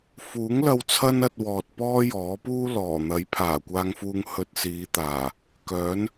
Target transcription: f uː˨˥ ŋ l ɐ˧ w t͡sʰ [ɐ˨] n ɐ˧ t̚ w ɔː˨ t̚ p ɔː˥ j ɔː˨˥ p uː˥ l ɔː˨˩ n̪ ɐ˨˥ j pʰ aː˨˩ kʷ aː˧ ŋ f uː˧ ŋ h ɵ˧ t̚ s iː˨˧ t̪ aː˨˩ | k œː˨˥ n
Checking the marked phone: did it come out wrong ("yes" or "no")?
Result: yes